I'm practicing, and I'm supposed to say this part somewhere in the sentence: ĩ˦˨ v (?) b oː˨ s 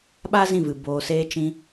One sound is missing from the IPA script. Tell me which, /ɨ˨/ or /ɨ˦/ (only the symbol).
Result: ɨ˨